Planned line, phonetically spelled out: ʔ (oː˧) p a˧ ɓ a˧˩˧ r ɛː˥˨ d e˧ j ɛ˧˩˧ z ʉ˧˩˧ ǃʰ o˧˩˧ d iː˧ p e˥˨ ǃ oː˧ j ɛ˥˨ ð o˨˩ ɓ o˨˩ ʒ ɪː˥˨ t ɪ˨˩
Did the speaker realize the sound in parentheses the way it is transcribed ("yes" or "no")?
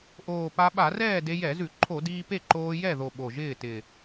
no